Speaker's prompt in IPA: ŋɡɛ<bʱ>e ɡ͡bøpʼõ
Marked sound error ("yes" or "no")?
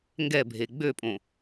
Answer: no